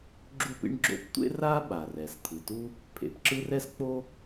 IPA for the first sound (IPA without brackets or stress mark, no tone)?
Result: ɡ͡ǁ